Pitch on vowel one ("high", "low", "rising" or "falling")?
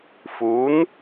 rising